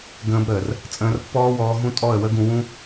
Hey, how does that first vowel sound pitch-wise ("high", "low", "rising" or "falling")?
high